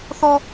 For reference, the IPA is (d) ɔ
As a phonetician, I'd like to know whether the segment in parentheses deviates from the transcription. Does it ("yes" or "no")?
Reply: yes